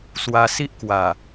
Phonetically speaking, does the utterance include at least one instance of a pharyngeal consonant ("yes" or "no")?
no